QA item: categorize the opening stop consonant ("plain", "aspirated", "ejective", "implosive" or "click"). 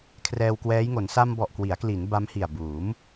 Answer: aspirated